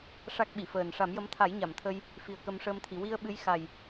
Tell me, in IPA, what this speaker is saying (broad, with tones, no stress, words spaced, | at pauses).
ʂa˦˥k̚ɓi˨˩˨fəː˨˩n ʂa˨˩˦mjə˧˥m t̪ʰa˨˩˦j ɲa˨˩˨mt̪ʰə˧j | fi˨˩ə̯kə˧mʂəː˧mt̪ʰi˨˩˨ wi˧ə̯ ɓɨ˧˥j xa˨˩j